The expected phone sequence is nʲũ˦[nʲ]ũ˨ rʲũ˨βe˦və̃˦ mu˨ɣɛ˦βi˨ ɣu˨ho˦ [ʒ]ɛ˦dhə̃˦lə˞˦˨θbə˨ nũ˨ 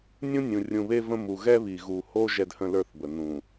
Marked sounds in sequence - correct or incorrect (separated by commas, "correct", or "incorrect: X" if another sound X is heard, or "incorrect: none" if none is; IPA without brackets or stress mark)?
correct, correct